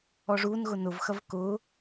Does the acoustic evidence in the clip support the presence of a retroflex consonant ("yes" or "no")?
yes